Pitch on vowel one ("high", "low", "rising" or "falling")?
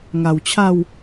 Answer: low